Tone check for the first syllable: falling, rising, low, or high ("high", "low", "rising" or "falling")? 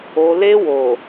low